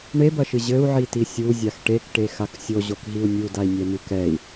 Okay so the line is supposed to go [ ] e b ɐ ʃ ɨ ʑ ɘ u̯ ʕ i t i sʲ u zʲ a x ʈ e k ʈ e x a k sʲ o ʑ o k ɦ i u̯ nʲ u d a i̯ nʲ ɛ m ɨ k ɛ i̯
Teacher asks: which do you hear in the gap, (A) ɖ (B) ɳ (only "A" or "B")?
B